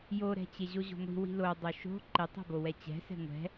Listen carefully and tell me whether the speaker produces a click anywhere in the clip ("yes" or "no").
yes